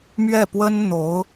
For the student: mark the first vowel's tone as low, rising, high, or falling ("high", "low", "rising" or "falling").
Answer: falling